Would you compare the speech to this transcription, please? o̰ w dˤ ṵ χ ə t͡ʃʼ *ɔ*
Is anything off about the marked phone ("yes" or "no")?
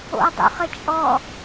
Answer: no